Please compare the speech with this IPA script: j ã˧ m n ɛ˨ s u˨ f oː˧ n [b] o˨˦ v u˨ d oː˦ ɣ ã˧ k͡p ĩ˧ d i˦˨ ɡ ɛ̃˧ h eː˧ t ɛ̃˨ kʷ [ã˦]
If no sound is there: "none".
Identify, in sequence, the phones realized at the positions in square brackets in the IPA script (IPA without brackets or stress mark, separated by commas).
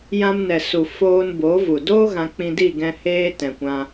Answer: b, ã˧